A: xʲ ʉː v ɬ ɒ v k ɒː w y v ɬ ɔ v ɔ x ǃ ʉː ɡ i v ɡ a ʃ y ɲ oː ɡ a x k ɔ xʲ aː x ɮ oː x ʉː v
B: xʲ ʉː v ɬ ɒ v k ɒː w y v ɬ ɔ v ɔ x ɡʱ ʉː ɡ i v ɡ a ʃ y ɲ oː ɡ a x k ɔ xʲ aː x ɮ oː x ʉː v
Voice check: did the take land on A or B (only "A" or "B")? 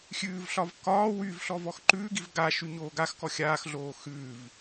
A